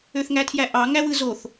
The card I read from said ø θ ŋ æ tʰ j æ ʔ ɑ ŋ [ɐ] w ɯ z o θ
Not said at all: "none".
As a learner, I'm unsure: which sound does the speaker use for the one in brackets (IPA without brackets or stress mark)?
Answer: æ